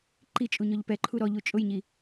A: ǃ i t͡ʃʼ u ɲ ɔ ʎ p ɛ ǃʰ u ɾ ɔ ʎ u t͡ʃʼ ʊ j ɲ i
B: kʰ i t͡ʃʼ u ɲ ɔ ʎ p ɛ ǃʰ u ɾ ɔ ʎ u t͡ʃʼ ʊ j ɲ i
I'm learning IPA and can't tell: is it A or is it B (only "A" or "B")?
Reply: A